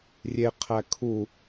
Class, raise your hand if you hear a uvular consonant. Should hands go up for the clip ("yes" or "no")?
yes